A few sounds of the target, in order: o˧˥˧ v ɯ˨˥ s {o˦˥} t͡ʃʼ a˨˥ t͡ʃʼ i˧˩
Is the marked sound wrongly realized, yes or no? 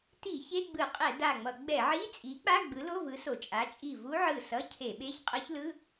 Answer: yes